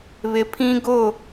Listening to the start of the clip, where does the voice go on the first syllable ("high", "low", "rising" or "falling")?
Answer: low